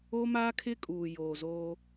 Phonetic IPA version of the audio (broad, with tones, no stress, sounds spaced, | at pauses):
o˦ m a˦ kʰ ɪ˦ kʼ uː˨ j oː˨ z o˦